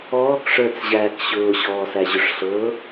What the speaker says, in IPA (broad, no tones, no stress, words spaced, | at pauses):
ɔːkʂə˞t͡sʑæːk ɕʊːɕɔːsæʑʊʂ ɬɤ